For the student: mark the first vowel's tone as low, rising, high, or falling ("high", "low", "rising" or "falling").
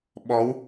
rising